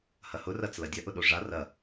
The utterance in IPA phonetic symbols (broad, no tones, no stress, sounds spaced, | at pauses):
h ɐ h ʊ r ɐ t͡s l ɐ dʲ ɐ ʔ ʊ ɗ o ʐ a r ɐ